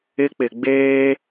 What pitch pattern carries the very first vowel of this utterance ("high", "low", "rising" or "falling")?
high